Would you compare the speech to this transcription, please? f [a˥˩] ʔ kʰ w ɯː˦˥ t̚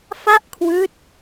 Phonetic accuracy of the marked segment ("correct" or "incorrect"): correct